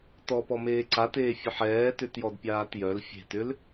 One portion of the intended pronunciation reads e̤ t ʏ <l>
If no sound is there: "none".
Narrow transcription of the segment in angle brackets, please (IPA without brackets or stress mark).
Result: l